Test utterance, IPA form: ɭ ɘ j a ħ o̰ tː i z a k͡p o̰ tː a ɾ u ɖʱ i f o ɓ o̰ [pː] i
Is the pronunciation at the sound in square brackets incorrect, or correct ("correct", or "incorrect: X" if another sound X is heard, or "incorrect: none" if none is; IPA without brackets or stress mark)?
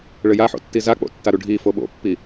correct